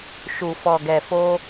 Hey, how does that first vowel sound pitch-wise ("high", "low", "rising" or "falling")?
low